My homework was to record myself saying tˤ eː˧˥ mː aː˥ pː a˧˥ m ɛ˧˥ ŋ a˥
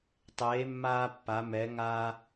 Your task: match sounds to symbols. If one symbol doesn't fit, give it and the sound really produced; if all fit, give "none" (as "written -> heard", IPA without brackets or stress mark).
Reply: none